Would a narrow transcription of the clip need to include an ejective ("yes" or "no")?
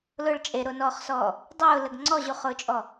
yes